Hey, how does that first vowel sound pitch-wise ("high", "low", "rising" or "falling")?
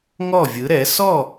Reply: falling